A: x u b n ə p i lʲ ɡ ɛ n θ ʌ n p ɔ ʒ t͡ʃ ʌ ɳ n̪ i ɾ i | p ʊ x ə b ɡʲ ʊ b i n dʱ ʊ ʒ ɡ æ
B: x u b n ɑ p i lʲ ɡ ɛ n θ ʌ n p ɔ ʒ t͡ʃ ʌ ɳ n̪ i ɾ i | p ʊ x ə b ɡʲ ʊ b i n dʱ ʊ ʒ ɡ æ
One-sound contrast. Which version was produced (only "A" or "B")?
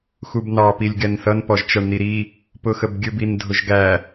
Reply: B